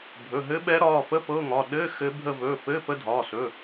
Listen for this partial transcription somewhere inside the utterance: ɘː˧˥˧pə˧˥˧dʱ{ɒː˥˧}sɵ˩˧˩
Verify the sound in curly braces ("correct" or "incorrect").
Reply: incorrect